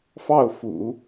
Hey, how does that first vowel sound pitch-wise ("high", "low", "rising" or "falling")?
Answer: falling